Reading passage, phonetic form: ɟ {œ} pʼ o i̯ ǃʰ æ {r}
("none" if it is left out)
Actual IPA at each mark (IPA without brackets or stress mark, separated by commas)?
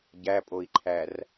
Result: æ, r